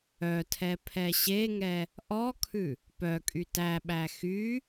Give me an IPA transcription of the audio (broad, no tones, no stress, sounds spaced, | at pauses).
œ tʰ ɛ pʰ ɛ ɕ e ŋ ɛ | ʔ ɔ kʰ ʉ | p œ kʼ y t æ ɓ æ x y